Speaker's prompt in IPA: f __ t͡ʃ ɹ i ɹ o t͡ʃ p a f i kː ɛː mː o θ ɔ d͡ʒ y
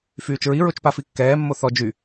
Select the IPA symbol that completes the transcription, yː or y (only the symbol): yː